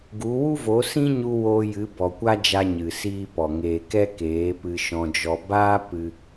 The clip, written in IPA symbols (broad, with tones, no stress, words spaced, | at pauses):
ɡu˨˦ wu˦vo˨˦sĩ˦ɲu˧ woː˧jɨ˨˦ bɔ˨kʷa˦d͡ʒa˧ ɲɨ˨siː˦pɔ˨ ŋeː˨kɛ˦ keː˨˦ pɨ˧ʃɔ̃˧d͡ʒɔ˧ baː˦ pɨ˦